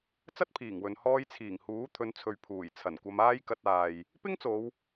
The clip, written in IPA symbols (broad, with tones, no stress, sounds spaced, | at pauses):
t͡s ɐ˥ t̚ pʰ iː˨˩ ŋ w ɵ˨ n h ɔː˧ j t͡sʰ iː˨˩ ŋ h uː˨˥ t̪ʰ ɵ˨˧ n t͡sʰ ɵ˨ ɥ pʰ uː˨˩ j t͡sʰ ɐ˨˩ n kʷ ɐ˧ m aː˥ j k ɐ˧ t̚ aː˨ j | p ɪ˥ ŋ t͡s o˨˧ w